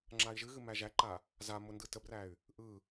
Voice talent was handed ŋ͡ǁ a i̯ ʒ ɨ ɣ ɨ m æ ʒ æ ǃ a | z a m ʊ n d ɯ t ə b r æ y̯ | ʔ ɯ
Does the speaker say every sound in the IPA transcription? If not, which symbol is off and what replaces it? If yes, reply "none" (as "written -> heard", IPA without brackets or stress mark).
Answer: none